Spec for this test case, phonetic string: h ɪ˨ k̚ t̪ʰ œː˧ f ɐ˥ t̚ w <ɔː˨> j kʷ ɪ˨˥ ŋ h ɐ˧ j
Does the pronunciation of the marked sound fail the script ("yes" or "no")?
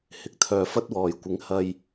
no